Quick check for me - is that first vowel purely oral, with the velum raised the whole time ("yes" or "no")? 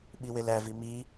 yes